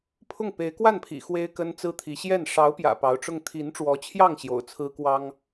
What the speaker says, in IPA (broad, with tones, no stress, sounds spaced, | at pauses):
pʰ ʊ˥˩ ŋ p e˧˥ ɪ̯ k w a˥˩ n pʰ ḭ˨˩ x w e˥ ɪ̯ k ə˥ n t͡s ɹ̩˥ t̪ʰ i˧˥ ɕ j ɛ˥˩ n ʂ ɑ˧˥ ʊ̯ p j ä̰˨˩ p ɑ˧˥ ʊ̯ ʈ͡ʂ ʊ˥˩ ŋ t̪ʰ i˧˥ n ʈ͡ʂ w ɔ˧˥ t͡ɕʰ j ɑ˥˩ ŋ ɕ j o̰˨˩ ʊ̯ t͡sʰ ɹ̩˥ k w ɑ˥ ŋ